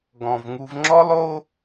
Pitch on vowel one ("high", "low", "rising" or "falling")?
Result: low